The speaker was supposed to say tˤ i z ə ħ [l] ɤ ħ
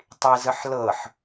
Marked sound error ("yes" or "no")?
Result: no